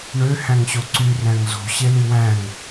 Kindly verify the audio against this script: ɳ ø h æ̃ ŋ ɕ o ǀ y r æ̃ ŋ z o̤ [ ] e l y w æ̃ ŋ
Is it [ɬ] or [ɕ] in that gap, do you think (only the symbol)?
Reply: ɕ